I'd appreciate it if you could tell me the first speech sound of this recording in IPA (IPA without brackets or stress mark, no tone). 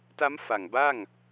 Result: t